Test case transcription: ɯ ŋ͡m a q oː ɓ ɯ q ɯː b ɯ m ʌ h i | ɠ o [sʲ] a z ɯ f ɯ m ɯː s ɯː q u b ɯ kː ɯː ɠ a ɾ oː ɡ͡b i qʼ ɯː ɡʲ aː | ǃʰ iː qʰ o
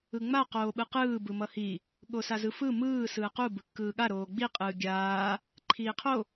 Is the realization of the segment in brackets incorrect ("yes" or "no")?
yes